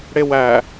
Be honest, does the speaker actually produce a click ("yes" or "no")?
no